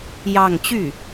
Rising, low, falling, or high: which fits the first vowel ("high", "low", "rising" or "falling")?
falling